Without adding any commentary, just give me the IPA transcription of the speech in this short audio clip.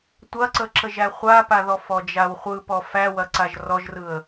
tʷ ɐ ǀ ə ǁ ə ʒ æ χʷ a p a ð ɔ f ɔ d͡ʒ a w χʷ ɯ p ɔ f æ w ɐ ǀ a ʒ r ɔ ʒ r ɯ ə̯

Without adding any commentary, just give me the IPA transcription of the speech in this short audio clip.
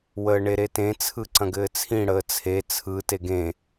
w əː ɳ e ɾ e t ẽ t͡sʰ ɯ ǀ ɐ̃ ɡ ɘː t͡sʰ ĩ ɽ əː t͡sʰ e t͡sʰ ɯ t e ɡ ẽ

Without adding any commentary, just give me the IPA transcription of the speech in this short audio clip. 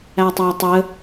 æ tˤ æ tˤ ə

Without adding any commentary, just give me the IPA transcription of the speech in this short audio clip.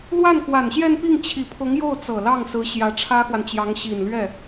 l w a˥˩ n k w a˨˩ n ɕ j ɛ˥˧ n p i˥˩ ŋ t͡ɕʰ i˨˩ pʰ ʊ˧˥ ŋ j o˥˩ ʊ̯ t͡s ɤ˨˩ l ɑ˥˩ ŋ s ɹ̩˧˥ ɕ j ä˧˥ ʈ͡ʂʰ ä˥ x w a˨ n t͡ɕ j ɑ˧˥ ŋ ɕ i˨˩ n l ɥ ɛ˥˩

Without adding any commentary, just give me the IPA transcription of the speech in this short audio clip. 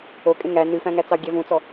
o kʼ ẽ ŋ æ n ʉ f æ̃ ŋ æ t͡s ɑ ɡʲ ɛ v ũ t͡s ɔ

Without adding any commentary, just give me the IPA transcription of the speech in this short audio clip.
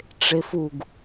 ʈ͡ʂ e f u ɡ

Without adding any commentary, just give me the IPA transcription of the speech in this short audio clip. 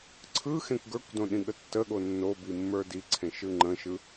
ǀʰ ɯ x ẽ kʷ ɡ ə˞ kʷ d õ ɗ ĩ ɠ ə tː ə ɠ o nː o b i mː ə˞ d i ǀʰ ẽ ʃ ɯ ŋ͡ǃ ə̃ ʃ ɯ

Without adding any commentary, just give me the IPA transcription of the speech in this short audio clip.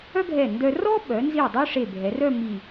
œ˥ ɡʱ ɛ˧˩ n d œ˧ r ɔ˥ ɓ œ˩˧ n z i˧˩ dˤ ø˥ ʂ e˧˩ bʱ ɛ˩˧ r œ˥˧ m i˧˩

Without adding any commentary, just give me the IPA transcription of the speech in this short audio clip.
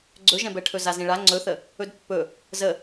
ɡ͡ǀ ɵ ʒ ɛ̃ b ɛ ʈʰ ɵ z a z ĩ ɭ a ŋ͡ǀ ɵ θ ə | ɵ d pː ɵ | z ə

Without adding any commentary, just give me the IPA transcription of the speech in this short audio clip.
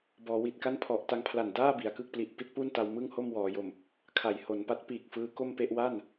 b ɔː˩˦ w i˨˩ t̚ k a˥˩ n pʰ ɔ˨˩ ʔ t a˧ ŋ pʰ l a˨˩ n d aː˥˩ b i˩˦ a̯ k ɯ˥˩ k̚ p l i˨˩ ʔ p i˥˩ t̚ p uː˥˩ n t a˧ w m ɯ˥˩ ŋ h o˥˩ m w ɔː˩˦ j o˨˩ m | kʰ a˩˦ j h o˩˦ n p a˦˥ t̚ p iː˨˩ k̚ f ɯː˦˥ k o˥˩ m p e˥˩ ʔ w a˥˩ n

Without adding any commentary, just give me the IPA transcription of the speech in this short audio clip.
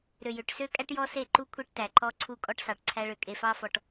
ɾ ø˨ j ø˨ ʈ s ø˦ kʼ æ˦ ʈ j ɔ˦ s e˦˨ ǃ u˦ kʷʰ e˦ ʈ t æ˨ ǃ ɔ˦ ǀʰ u˦ kʼ ɔ˦ ʈ s ɑ˨ ʈ ǀʰ æ˦ ɭ ø˨ kʼ e˨ f ɑ˦ f ɔ˦ ʈ

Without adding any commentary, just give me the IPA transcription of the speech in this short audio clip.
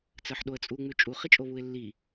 t͡s ɜ ħ ɗ o ə̯ t͡sʼ u ŋ͡m ʉ t͡ʃʼ u χ i t͡ʃʼ o β u ɪ̯ lː i

